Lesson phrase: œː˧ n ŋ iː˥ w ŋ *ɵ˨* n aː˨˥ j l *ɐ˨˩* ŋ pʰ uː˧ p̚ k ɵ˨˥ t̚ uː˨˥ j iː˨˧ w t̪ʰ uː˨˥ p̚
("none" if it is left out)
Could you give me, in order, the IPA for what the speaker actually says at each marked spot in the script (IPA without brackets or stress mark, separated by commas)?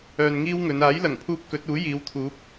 ɵ˨˧, ɐ˨˩